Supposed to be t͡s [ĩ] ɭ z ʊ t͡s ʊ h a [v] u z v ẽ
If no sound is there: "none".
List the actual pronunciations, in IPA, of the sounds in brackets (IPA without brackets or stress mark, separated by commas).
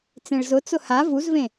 ẽ, v